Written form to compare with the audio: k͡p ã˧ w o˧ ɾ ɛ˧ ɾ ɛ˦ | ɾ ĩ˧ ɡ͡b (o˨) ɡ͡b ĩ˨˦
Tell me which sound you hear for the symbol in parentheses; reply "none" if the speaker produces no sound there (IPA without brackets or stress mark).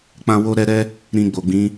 o˨